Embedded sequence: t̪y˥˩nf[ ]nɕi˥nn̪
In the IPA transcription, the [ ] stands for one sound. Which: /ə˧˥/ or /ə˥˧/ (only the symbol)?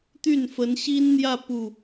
ə˧˥